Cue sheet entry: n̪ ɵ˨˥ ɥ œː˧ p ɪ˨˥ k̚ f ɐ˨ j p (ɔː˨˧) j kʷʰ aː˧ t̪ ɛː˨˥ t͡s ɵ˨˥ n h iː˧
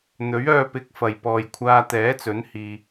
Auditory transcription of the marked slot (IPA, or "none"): ɔː˨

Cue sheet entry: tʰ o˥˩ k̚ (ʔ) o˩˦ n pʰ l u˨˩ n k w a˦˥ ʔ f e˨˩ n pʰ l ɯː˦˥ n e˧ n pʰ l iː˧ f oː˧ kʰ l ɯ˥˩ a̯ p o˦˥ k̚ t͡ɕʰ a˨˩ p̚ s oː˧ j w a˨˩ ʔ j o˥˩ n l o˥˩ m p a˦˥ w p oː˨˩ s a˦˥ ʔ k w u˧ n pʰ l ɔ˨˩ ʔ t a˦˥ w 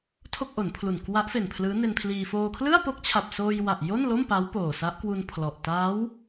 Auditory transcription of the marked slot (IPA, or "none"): ʔ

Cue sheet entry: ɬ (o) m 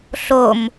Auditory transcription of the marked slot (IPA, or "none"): o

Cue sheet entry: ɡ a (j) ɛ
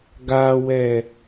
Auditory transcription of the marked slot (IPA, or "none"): w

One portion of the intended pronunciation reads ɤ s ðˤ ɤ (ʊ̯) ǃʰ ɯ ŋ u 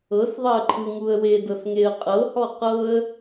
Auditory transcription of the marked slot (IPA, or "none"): ə̯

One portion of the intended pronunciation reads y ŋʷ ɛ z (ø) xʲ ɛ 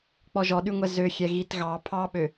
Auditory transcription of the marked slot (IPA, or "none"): ø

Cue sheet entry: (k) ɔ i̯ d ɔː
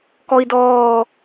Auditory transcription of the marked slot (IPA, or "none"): k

